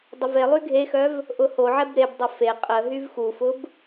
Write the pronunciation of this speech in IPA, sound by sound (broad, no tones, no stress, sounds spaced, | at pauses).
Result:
dˤ ə v e lˠ y ɡʱ e x œ v | ʔ ʊ h o ʕ ɛ b ɾ e b dˤ ɐ f e qʼ ə ɦ y v x u f ʊ b